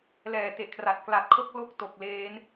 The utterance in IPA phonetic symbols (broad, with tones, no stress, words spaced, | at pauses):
lɛː˨˩te˨˩ʔkʰra˨˩t̚ kla˨˩t̚kʰo˦˥k̚lo˦˥k̚to˨˩k̚ leː˦˥n